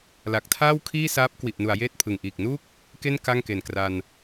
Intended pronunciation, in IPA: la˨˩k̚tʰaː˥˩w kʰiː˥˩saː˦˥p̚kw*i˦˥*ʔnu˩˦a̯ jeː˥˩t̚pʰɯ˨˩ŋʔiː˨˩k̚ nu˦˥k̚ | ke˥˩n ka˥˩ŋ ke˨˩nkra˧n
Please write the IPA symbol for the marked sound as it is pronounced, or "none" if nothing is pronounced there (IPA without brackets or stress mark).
i˨˩